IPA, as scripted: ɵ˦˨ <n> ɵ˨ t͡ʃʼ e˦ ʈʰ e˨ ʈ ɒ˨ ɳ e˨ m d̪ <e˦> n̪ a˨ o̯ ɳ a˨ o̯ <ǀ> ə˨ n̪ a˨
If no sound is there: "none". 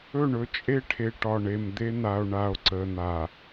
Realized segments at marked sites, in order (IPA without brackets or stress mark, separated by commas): ɳ, e˦, ǀ